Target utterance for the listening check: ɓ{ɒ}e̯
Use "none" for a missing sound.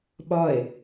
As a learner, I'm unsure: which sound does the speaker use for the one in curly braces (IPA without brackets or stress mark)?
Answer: ɒ